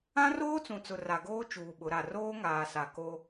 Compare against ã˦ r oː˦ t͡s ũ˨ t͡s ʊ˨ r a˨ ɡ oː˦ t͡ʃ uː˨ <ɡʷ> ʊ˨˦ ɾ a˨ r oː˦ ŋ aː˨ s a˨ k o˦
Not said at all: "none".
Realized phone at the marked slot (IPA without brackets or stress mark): ɓ